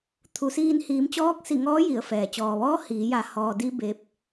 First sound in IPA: t̪ʰ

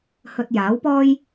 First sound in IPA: h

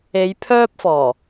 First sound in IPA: e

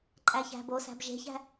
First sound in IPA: ǃʼ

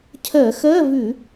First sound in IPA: cʰ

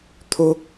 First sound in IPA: t̪ʰ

